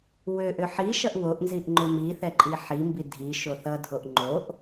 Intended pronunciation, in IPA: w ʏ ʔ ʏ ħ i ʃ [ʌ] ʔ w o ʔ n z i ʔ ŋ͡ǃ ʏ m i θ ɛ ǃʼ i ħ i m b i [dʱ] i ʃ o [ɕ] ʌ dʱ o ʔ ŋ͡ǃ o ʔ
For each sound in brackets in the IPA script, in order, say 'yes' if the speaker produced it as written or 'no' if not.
yes, yes, no

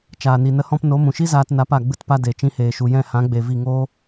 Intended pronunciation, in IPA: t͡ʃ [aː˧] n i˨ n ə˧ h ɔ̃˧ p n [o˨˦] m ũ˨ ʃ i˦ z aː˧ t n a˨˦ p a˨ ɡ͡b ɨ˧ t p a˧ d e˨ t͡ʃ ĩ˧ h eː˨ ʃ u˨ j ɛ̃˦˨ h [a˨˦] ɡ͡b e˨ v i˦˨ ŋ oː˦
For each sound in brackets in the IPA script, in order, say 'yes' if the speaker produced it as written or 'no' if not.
no, yes, no

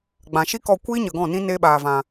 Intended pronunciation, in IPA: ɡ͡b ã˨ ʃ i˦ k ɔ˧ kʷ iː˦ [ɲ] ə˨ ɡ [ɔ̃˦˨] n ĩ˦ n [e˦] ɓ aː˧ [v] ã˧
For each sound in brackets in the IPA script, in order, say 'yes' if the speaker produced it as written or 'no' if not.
yes, yes, yes, yes

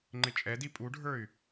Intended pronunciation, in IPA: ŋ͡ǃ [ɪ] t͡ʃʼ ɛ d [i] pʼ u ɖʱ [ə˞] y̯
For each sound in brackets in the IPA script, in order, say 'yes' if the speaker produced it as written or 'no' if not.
yes, yes, yes

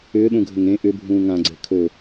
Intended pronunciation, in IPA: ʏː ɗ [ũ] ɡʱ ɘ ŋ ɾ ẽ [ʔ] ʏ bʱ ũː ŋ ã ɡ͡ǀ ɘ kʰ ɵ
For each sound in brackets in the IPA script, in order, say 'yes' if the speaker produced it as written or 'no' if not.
yes, yes

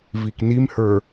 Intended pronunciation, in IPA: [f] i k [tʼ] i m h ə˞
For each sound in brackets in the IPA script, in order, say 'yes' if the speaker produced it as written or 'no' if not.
no, no

